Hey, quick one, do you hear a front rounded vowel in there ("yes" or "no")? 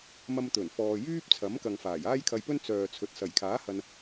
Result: yes